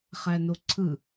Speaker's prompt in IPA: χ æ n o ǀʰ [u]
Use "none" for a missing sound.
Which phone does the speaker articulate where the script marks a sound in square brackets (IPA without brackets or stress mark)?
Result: ɯ